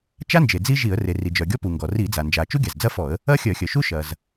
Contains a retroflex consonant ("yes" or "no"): no